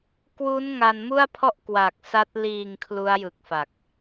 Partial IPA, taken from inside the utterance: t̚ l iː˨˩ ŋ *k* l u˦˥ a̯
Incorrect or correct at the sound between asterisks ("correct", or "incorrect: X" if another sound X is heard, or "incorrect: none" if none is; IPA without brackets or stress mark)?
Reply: incorrect: kʰ